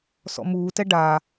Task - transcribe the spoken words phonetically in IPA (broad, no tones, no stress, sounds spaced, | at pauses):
s ɔ̰ m uː t ɛ ɖ a